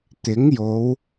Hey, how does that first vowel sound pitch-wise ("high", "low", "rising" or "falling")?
rising